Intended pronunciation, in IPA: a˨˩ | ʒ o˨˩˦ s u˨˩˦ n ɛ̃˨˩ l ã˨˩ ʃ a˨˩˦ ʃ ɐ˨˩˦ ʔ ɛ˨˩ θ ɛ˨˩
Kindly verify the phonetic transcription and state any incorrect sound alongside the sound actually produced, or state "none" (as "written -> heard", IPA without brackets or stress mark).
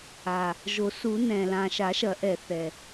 none